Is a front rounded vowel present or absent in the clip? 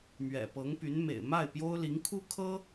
present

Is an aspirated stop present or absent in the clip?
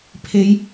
present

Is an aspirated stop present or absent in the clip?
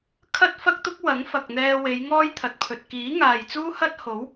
present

